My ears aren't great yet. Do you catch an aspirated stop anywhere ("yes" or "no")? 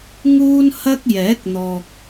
no